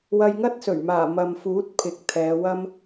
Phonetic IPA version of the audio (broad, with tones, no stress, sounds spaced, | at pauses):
w ɐ˧ j ŋ ɐ˥ t̚ s ɵ˨˩ ɥ m aː˨˩ m ɐ˨ m f uː˨˥ t̚ pʰ ɪ˨˥ k̚ t̪ʰ ɛː˨˧ w ɐ˥ m